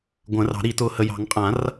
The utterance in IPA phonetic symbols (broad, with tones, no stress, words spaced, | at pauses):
ɡʷə̃ː˨˩˦rɑ̤˨˩˦ɾi˨˩˦ tʊː˨hə˨jɑ̤˨˩˦ŋ qʼã˨˩˦r